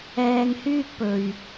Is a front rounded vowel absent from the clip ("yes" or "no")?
no